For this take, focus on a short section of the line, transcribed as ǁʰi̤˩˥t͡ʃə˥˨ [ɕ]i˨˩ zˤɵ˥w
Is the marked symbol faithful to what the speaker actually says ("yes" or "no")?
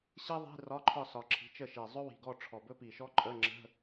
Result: no